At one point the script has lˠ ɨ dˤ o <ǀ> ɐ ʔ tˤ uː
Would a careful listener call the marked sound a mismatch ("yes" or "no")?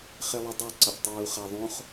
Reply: no